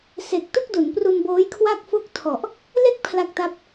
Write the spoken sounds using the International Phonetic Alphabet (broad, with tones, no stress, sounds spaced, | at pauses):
s e˨˩ k̚ t u˥˩ k̚ d u˩˦ n p r u˧ n b oː˦˥ j kʰ w a˥˩ k̚ f o˥˩ k̚ tʰ ɔ˨˩ ʔ | l e˥˩ k̚ pʰ l a˥˩ k̚ t a˥˩ p̚